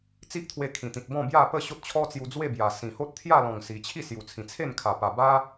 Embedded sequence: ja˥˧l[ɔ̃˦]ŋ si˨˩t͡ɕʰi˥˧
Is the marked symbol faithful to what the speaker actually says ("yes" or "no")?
no